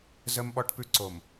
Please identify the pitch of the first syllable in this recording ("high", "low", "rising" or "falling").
high